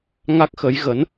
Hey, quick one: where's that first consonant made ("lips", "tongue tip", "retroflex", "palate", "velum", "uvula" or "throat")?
velum